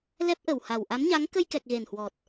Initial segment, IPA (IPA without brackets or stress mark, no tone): l